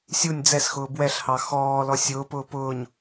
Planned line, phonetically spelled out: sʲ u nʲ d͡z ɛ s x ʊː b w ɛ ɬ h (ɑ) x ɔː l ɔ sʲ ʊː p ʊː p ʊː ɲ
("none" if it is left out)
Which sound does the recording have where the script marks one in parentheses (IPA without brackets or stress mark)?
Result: ɑ